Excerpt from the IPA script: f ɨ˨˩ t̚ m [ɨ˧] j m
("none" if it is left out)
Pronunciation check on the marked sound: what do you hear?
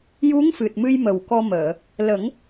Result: ɨ˧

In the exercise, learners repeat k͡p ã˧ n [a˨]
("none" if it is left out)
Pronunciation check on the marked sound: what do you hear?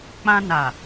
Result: a˨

